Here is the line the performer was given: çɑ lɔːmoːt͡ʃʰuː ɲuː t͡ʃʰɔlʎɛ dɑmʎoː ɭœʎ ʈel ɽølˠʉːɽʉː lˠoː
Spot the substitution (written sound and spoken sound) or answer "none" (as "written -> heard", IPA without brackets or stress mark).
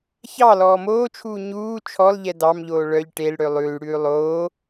none